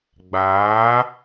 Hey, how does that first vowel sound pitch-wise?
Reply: rising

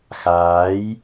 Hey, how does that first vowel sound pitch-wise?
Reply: rising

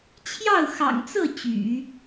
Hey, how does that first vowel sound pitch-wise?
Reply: falling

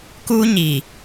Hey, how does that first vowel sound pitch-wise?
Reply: high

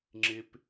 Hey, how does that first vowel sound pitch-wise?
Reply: high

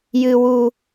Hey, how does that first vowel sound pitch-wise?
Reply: low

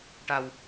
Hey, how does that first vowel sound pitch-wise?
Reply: low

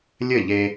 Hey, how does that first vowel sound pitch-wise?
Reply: falling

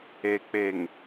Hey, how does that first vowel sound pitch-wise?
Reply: low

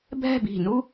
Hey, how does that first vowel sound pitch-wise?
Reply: falling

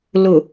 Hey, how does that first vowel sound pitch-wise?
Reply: low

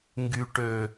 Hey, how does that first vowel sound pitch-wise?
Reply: low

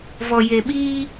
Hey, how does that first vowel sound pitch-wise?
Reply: low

